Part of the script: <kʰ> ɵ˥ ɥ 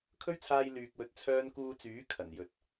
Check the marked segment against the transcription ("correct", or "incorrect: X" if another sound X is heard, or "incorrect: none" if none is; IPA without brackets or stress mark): correct